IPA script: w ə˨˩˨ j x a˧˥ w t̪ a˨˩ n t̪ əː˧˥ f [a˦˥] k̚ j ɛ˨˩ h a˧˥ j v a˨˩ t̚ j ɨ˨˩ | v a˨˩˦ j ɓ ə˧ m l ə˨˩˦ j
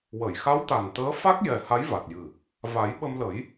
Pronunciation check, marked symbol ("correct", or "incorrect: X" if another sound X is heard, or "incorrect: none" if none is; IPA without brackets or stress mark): correct